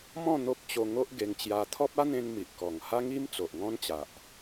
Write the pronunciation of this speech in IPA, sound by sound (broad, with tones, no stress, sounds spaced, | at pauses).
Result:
m ɔ̃˥˧ n̪ o˦ p̚ t͡ɕ o˧ ŋ o˦ ʔ ɡ e˧ ŋ t͡ɕ j a˧ t̪ʰ ɔ˦ p̚ a˦ n̪ ẽ˧ n m i˨ ʔ k ɔ˨˩ ŋ h a˦ ŋ i˦ m t͡s o˨ ʔ ŋ ɔ̃˦ n t͡ɕ a˨ ʔ